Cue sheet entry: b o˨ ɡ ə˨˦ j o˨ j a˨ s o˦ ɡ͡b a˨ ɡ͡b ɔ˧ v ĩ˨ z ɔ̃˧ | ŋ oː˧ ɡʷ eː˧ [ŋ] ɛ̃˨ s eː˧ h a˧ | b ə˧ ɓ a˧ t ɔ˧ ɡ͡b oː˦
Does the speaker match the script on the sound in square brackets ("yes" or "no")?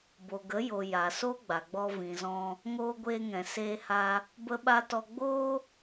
yes